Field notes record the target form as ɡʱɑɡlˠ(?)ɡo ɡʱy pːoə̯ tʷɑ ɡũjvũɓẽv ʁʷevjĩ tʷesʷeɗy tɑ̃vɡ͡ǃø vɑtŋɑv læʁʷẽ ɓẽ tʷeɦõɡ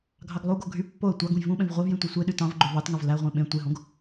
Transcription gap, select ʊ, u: u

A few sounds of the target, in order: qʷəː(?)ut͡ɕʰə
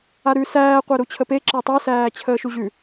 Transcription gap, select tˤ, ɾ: ɾ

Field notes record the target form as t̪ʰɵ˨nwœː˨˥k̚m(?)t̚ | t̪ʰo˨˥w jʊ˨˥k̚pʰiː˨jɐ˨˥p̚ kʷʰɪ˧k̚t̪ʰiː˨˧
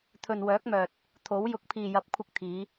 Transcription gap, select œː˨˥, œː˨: œː˨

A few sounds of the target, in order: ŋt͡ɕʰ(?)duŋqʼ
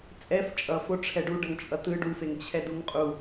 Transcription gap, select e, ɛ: ɛ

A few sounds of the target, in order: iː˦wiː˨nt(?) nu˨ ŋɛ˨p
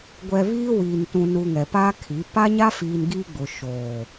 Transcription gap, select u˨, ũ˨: ũ˨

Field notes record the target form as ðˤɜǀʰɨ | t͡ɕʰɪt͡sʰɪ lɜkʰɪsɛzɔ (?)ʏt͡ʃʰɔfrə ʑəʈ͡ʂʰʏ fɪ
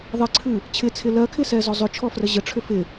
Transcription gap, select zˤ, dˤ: zˤ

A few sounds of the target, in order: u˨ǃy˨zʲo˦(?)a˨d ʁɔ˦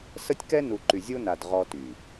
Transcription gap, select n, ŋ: n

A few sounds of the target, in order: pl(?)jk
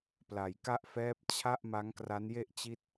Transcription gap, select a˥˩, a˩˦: a˩˦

